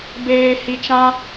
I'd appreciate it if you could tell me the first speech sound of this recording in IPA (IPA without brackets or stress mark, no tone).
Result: b